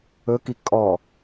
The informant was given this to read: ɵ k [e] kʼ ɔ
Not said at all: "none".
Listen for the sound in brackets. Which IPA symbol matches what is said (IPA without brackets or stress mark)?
i